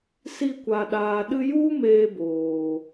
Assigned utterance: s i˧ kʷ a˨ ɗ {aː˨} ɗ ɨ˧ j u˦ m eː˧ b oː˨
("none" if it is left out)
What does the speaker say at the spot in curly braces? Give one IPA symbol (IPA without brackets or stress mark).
aː˨